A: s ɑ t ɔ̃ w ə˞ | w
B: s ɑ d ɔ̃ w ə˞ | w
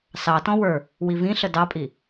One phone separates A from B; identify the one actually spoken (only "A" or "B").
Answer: A